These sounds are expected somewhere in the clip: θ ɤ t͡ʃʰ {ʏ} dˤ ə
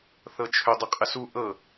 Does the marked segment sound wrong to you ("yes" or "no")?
no